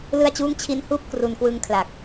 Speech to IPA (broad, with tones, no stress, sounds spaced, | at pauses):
l ɯ˥˩ a̯ t͡ɕ uː˥˩ ŋ t͡ɕʰ i˦˥ n h uː˥˩ p̚ k r u˧ n k w ɯ˦˥ ŋ kʰ l a˨˩ k̚